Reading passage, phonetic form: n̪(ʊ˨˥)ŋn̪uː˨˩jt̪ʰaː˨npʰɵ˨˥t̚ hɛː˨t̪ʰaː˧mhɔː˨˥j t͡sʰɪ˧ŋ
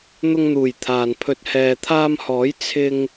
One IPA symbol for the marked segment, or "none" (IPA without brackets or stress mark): ʊ˧